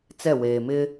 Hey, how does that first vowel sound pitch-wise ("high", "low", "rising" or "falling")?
falling